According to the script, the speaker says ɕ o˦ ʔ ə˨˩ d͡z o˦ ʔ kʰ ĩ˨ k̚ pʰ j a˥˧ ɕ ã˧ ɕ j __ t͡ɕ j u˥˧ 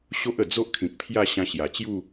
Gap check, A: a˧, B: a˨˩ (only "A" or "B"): B